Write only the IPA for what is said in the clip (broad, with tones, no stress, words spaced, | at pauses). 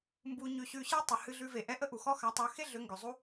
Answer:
mbu˧ɲʉ˧ ɕʉ˧ɕe˦tˤʏ˨ hɨ˧ɮʉ˧ve˨ʔɛ˦ ʔə˦ʔu˨xɔ˦xa˨˦ tˤœ˨˦xe˦ ɮʏ˨˦ŋɡʏ˨ zˤu˦